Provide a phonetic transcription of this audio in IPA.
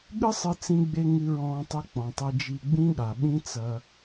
ɠ ɨ˦ sˤ ɨ˧ t͡s ĩ˧ ɡ͡b e˧ ŋ ɨ˧ ɹ ɔ̃ː˧ tˤ ɛ˧ k͡p ɔ̃˨ tˤ ɘ˧ d͡ʒ i˧ ɡ͡b ĩ˦ ɠ a˨ ɓ ĩ˦ t͡s ɐ˧

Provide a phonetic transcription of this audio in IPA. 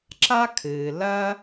ǁ a˦ kʰ ɨː˨ l ɐ˦

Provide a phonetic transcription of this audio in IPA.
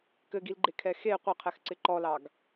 k ɘ ɡ i l ɡ͡ǃ e kʰ ɛ x e qʷ ɘ qʰ ɛ x ǀ ɪ ǃ ɔ l ɑ ɡ

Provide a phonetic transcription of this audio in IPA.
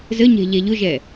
z ə ɲ ɛ̤ ʎ ɛ ʎ ʊ ʒ ɛ

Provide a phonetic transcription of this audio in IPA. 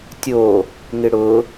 tʲ o | ŋ ɪ ɽ ʊ

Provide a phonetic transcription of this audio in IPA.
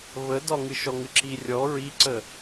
β ə d ɒ ŋ ɨ ʃ ɔ ŋ ɨ ǁ i rʲ ɔ ɹ i ǀ ə

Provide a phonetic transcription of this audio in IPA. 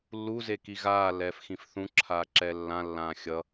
lː u z e k i ɣ aː lː ɛː f x ĩ f θ ũ ǁʰ aː ǁ ɛ lː ã lː ãː xʲ ʌ

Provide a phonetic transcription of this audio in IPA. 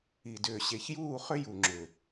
i˧˩ d ʏː˧ ɕ e˧ ç j uː˥˧ χ ʏ˥ j u˧ ŋ͡ǁ ʏ˧˩

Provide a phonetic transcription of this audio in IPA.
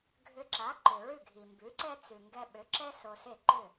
ɡʱ ʏ˧ ǁ a˩˥ ǃ ʏ˩ ɹ ʉ˥˩ ɡʱ i˩ m b ʉ˩˥ ǀ ɛ˥ t͡s ʉ˩ ŋ ɡ ɛ˧ ɓ ʏ˩˥ ǁ ɛ˥ s o˧ s e˥˩ ǃ ʏ˥˩

